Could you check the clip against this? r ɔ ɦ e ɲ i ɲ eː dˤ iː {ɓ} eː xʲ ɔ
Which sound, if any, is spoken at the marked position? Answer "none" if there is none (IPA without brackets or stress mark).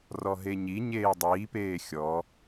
p